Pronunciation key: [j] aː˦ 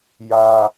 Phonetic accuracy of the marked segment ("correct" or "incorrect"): correct